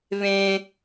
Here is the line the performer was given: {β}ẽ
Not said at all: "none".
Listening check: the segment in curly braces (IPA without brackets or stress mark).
β